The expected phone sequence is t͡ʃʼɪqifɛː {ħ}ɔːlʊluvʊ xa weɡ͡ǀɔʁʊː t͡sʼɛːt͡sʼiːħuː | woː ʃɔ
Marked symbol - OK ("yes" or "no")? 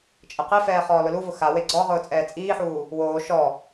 no